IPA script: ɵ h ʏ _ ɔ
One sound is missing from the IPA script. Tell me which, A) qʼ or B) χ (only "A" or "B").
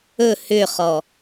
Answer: B